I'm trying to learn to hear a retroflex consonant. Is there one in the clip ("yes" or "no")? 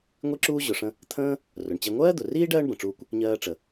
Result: yes